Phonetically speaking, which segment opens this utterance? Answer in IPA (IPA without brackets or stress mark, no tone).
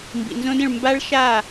m